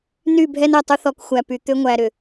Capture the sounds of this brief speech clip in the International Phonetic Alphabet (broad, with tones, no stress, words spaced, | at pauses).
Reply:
ny˦˨bʱɛ˦nɛ˨ tˤʏ˦θɔ˨k xʷæ˨ py˨ t̪ʏ˦ŋʷæ˨ ɾʏ˨